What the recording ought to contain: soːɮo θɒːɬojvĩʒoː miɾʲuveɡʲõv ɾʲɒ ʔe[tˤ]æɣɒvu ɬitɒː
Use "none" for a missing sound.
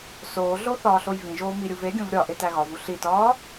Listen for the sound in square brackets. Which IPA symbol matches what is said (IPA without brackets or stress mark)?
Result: t